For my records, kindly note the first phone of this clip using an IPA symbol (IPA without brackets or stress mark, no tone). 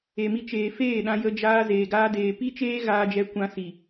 e